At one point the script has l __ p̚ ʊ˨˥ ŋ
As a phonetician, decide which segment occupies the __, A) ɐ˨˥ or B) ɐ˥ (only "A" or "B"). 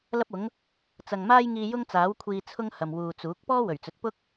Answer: B